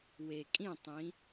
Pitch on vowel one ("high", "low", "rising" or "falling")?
low